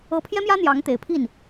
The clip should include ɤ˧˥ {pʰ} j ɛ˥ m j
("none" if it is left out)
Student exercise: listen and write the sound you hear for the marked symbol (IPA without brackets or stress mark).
pʰ